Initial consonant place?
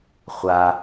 uvular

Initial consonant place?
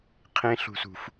uvular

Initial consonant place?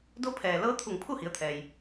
alveolar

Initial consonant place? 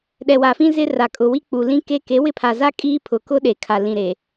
alveolar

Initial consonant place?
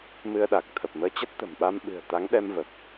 labial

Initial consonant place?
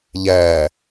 palatal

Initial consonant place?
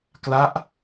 velar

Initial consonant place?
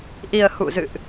glottal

